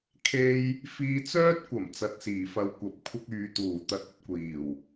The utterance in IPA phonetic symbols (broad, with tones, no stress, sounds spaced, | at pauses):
kʰ e˥ j | f iː˧ t͡s œː˥ t̚ kʷ ɐ˨˩ m t͡s ɐ˨ t̚ s iː˨˩ f ɐ˨˧ w kʷ ɐ˨ p̚ kʷʰ ɐ˥ k̚ yː˨˧ t̪ uː˨˩ t̪ ɐ˧ t̚ ɵ˧ t̚ kʷ iː˨˩ w